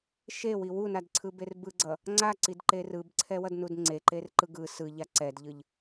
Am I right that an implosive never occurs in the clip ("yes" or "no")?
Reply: yes